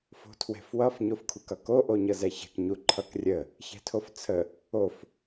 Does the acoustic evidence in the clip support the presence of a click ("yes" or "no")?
yes